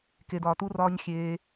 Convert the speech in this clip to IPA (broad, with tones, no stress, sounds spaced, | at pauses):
k e˧ d ɒː˧ t u˦ r ɒː˦ ɲ xʲ eː˧